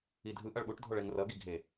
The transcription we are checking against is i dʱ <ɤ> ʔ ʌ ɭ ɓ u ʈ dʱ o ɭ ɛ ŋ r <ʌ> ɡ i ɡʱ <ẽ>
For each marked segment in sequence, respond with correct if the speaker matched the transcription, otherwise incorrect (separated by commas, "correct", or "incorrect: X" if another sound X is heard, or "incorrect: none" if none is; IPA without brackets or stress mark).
incorrect: ɯ, correct, incorrect: e